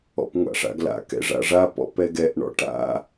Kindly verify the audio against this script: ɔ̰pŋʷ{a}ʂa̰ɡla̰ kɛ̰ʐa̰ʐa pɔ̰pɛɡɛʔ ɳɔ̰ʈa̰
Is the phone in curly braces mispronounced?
yes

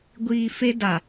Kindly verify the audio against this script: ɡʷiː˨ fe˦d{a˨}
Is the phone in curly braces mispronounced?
no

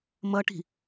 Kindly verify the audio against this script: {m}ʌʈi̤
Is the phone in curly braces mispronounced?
no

